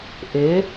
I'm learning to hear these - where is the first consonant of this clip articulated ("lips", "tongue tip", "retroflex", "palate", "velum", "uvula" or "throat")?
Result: throat